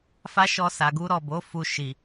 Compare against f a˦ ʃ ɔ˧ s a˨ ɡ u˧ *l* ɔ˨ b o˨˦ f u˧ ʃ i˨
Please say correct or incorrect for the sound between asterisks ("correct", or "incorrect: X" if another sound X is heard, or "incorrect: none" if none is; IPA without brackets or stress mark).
incorrect: ɾ